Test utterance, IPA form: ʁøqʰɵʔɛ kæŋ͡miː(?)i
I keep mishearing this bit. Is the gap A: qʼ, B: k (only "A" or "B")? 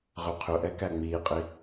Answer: A